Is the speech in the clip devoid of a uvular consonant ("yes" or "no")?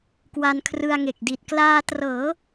yes